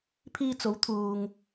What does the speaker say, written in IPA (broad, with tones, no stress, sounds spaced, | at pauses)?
pʰ iː˧ t͡s o˨˥ w t̪ʰ uː˨ ŋ